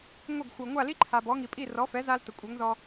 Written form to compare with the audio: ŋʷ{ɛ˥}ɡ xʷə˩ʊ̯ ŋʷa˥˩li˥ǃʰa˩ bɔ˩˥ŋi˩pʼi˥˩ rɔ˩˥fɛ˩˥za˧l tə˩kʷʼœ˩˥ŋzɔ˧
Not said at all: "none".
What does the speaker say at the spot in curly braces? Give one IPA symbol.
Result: ɛ˥˩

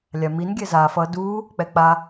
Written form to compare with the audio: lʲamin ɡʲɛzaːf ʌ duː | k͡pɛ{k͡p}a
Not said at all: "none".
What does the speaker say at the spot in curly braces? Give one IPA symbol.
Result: k͡p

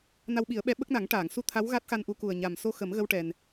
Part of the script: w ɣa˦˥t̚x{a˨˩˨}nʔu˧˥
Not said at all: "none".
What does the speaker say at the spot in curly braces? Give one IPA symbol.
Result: a˧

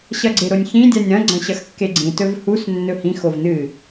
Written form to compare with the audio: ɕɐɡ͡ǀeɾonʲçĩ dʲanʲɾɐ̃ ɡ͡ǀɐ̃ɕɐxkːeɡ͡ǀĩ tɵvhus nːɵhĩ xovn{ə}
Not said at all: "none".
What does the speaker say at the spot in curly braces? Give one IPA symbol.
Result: ɨ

